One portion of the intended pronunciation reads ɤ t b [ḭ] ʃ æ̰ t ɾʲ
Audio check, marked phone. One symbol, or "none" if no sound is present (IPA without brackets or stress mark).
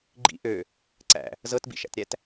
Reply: ḭ